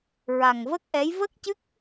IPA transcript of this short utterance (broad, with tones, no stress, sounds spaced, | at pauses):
ɹ a˨˩ ŋ v ə˦˥ k̚ ʔ ɛ˧˥ j v ə˦˥ k̚ c ɨ˦˥ k̚